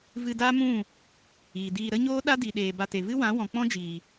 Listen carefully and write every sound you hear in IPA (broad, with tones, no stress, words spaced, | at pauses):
vɨ˧da˦mũ˦˨ | iː˨diː˧ ɾə˦ɲoː˦ ɗa˦di˨ɗeː˨ ba˧te˨ vɨ˦wã˨˦wɔ̃˨k͡pɔ̃˦ d͡ʒiː˨